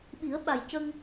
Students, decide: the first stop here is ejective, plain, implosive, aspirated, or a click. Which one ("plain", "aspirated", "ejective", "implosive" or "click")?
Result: implosive